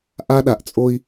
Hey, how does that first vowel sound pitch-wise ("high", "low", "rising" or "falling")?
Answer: high